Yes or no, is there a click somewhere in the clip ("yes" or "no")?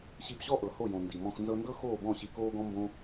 no